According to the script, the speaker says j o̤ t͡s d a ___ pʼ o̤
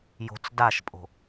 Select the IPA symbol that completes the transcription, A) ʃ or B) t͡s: A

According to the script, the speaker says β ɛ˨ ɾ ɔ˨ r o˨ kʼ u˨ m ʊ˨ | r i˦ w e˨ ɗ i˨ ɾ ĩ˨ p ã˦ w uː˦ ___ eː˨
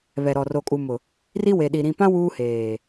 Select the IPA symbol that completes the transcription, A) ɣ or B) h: B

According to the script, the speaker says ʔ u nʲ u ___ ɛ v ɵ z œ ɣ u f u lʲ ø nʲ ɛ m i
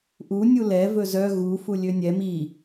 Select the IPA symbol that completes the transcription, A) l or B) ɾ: A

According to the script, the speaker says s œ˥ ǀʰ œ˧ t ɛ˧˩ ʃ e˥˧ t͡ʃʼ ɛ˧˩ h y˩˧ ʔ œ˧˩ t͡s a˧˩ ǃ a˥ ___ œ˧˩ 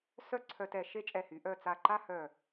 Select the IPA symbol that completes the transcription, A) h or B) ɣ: A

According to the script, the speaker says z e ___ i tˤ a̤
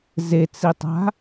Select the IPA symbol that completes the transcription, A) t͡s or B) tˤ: A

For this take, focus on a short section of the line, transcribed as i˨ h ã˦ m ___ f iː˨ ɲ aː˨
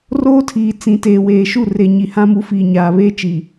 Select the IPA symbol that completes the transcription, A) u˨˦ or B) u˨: A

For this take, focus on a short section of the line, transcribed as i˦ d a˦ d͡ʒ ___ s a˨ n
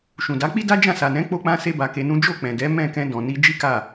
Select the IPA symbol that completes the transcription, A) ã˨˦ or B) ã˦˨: B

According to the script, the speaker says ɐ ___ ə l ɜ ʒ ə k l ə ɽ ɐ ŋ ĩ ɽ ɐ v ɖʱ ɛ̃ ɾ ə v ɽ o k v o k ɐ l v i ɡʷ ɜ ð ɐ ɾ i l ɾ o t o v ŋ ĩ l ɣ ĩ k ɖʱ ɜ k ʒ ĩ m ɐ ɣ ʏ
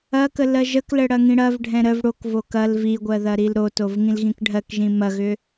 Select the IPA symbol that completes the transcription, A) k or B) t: A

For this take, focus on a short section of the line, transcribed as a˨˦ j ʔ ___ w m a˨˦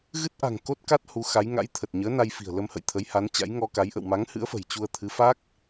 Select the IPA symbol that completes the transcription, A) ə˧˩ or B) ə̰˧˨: B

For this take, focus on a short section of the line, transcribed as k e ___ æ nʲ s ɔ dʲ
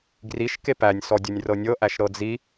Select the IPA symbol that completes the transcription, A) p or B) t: A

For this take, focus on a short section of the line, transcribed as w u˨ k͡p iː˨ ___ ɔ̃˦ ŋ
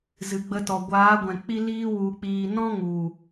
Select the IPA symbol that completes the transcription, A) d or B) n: B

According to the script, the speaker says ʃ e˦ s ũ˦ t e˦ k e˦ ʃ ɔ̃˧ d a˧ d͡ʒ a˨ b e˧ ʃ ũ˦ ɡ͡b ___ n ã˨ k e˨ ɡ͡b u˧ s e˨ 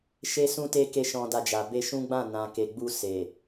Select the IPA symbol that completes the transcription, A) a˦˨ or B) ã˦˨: B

